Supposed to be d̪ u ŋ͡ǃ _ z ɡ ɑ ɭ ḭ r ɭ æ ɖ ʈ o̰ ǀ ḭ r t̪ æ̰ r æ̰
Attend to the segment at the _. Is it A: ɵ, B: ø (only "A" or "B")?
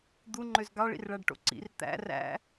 B